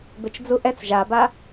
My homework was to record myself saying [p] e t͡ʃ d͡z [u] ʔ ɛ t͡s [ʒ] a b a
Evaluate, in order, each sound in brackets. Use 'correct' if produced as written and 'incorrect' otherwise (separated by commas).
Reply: incorrect, correct, correct